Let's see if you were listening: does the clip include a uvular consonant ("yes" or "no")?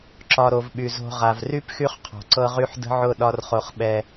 yes